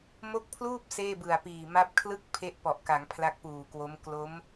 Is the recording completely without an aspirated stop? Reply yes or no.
no